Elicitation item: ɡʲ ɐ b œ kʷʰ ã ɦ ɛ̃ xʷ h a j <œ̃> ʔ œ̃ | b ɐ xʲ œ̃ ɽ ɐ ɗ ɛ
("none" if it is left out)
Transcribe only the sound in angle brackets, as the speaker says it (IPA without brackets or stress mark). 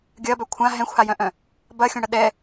œ̃